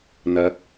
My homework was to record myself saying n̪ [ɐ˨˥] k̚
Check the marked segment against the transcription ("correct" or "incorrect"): correct